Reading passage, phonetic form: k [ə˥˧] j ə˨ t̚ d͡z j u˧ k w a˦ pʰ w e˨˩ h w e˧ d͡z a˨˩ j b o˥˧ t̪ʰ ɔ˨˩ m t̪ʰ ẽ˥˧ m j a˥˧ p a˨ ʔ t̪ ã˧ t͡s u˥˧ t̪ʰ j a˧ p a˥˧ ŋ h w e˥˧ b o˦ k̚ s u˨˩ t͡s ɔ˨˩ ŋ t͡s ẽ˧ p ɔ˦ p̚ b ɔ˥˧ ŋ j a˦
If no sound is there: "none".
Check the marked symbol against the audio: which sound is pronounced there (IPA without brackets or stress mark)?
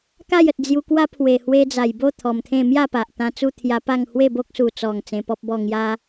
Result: a˥˧